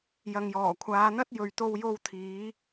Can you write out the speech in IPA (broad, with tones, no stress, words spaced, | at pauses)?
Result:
jɐ˨ŋjɔː˨˩kʷʰaː˨˧n̪ɐ˥t̚ jɵ˨ɥt̪o˧wjo˧w t̪ʰiː˨˥